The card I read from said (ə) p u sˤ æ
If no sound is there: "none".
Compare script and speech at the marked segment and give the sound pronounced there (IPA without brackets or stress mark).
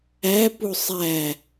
æ